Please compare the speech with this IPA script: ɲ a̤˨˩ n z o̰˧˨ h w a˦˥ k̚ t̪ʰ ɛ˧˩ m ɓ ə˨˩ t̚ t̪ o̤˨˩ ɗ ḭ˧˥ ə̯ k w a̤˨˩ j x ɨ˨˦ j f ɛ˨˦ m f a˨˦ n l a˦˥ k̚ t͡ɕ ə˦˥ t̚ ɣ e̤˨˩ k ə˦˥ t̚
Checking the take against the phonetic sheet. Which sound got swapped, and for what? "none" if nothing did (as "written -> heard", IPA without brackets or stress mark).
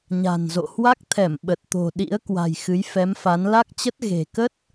none